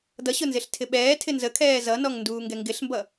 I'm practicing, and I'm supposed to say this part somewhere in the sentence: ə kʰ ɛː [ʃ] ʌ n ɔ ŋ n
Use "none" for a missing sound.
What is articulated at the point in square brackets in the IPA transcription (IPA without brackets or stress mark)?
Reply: z